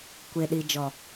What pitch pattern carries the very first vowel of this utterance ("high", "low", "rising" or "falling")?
low